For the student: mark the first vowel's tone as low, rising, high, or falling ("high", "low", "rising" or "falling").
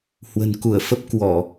low